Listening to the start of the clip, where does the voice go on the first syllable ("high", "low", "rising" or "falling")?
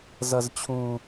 low